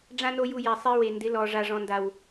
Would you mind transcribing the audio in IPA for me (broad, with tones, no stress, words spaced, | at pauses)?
ɖ͡ʐã˦no˦ju˧ jɛ˨ sˤi˧we˨ndɪ˨˦lɔ˨ ʐa˨ʐɔ̃˨nda˨w